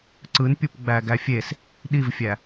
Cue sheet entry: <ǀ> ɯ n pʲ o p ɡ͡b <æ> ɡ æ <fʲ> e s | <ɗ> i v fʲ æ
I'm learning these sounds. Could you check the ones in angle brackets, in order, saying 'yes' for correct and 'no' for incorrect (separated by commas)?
yes, yes, yes, yes